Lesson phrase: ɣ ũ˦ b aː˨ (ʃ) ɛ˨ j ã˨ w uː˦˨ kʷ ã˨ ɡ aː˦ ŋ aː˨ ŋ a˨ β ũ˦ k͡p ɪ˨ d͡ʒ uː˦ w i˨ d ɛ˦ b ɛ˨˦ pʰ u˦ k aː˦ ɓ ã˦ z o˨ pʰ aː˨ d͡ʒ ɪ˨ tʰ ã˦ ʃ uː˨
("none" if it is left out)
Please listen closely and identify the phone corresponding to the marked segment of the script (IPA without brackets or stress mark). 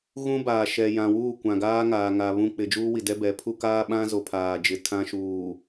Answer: ʃ